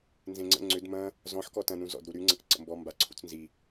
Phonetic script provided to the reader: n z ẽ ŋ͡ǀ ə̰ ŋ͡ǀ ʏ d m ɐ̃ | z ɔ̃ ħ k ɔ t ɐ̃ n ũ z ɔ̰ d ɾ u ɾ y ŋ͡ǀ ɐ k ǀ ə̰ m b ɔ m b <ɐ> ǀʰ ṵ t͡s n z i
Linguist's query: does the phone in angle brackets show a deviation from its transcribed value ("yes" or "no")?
yes